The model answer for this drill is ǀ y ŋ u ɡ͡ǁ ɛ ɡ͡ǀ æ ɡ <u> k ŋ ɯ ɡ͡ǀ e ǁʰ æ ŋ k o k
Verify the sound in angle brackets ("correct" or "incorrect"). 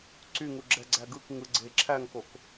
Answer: incorrect